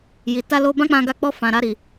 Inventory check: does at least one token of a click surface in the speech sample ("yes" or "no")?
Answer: no